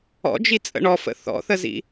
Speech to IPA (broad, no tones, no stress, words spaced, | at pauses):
ɔ̰d͡ʒit͡sʼə̰ ɳɔfə̰ θɔ̰θəzḭ